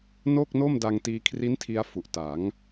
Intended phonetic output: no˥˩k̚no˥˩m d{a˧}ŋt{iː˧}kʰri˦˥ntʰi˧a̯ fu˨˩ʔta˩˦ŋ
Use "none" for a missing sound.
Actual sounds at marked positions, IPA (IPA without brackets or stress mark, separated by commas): a˧, iː˧